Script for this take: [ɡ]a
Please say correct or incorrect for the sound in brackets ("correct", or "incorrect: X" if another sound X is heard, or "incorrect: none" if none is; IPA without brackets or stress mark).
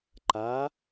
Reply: incorrect: ǃ